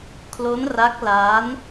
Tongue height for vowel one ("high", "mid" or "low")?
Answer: mid